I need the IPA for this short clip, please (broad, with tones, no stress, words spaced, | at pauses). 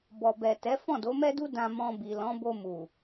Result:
bɔ˨bɛ˨tɛ˨˦ fɔ̃˦˨do˨˦mɛ˦du˦ dã˧mɔ̃˧bi˨ lɔ̃˨˦bo˧ mu˨